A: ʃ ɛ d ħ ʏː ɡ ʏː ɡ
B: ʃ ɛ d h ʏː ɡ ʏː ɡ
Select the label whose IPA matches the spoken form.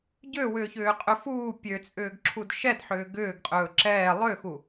A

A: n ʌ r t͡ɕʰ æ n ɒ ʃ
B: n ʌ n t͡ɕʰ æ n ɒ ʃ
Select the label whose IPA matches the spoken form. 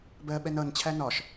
B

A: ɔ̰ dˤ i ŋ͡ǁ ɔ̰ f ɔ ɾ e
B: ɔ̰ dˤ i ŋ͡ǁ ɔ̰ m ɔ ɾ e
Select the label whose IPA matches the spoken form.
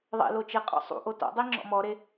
B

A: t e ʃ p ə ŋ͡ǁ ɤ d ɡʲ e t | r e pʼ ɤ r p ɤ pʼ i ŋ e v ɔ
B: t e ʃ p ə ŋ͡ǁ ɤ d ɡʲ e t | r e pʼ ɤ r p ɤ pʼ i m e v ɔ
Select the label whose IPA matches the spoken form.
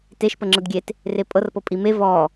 B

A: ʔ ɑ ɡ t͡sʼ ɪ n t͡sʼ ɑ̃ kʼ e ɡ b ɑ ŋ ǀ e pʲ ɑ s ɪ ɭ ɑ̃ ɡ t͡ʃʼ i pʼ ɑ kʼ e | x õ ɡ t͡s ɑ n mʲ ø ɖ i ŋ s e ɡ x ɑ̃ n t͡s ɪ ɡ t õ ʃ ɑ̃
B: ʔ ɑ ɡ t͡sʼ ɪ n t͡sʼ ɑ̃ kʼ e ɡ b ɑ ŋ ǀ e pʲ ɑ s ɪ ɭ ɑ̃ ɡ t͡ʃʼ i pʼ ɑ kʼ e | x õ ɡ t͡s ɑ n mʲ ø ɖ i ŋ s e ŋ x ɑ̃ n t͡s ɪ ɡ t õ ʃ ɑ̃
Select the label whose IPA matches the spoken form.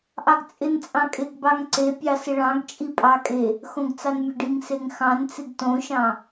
B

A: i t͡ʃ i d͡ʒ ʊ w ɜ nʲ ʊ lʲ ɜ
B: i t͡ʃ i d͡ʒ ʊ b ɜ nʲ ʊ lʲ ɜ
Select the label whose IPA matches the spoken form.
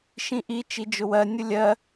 A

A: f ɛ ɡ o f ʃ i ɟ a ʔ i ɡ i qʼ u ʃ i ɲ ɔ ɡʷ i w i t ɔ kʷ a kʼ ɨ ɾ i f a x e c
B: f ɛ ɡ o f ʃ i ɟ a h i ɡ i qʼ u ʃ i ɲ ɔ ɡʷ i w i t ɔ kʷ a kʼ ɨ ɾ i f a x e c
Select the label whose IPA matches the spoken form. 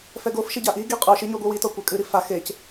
A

